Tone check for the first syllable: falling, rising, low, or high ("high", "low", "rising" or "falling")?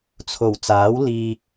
low